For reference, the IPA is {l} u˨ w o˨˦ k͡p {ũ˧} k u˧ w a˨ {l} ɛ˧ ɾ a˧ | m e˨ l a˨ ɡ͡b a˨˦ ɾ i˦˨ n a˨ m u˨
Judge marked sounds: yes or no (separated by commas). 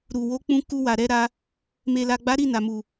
no, yes, no